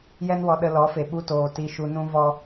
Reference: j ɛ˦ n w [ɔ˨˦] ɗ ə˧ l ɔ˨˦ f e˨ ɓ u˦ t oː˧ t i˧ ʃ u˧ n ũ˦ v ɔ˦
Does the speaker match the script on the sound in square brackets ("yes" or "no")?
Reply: no